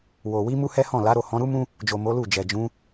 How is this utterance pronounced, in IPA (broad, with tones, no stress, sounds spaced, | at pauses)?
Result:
w o˨ w i˨˦ m u˦ h ɛ˦ h ɔ̃˦˨ l a˨˦ ɾ o˦˨ h ɔ̃˨˦ ɾ u˦ m ũ˦ | d͡ʒ o˨ m o˨˦ l u˦˨ d͡ʒ ɛ˨ d͡ʒ ũ˨˦